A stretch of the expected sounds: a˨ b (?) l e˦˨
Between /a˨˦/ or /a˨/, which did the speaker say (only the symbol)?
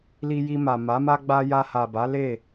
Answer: a˨˦